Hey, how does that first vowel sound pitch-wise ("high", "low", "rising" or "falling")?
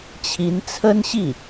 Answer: rising